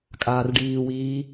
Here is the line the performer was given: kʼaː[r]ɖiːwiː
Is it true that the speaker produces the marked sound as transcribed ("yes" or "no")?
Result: yes